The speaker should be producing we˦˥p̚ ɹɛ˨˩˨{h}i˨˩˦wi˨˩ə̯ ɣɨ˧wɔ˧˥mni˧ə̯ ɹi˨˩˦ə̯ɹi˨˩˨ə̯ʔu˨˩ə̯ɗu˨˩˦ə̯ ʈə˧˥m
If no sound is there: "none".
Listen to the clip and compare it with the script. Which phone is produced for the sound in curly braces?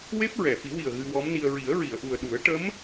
f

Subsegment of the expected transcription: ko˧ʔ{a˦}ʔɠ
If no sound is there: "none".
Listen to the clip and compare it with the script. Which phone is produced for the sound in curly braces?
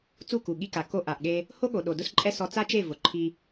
a˨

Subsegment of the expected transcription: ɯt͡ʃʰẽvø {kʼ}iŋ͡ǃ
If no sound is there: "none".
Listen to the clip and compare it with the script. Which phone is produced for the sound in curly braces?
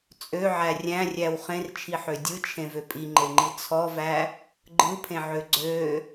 pʼ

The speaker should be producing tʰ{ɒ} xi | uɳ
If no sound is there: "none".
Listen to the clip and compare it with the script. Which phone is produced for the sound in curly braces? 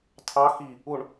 ɑ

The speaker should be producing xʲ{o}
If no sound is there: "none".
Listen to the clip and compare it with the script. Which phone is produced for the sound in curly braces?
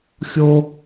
o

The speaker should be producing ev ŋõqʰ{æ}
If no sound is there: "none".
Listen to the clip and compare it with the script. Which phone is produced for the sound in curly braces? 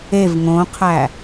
æ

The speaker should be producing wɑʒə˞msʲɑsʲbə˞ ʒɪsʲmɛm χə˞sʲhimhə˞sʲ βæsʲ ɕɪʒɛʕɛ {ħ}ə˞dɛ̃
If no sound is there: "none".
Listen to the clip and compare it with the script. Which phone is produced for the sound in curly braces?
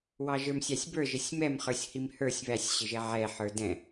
ħ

